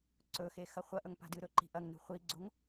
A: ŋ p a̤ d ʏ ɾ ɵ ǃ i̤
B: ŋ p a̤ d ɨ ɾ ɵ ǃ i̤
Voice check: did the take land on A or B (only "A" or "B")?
B